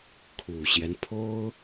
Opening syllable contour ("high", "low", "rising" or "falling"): low